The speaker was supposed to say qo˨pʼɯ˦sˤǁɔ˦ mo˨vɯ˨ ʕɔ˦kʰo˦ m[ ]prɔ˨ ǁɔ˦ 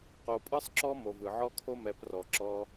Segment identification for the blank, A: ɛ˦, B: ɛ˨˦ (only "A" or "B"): B